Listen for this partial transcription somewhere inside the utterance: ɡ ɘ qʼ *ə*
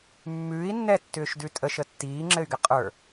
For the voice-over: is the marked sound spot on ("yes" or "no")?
no